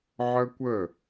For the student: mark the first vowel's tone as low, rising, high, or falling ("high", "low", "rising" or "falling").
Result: high